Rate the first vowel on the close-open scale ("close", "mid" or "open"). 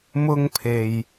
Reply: close